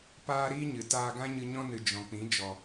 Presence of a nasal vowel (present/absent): present